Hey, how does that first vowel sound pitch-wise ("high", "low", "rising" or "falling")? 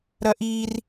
high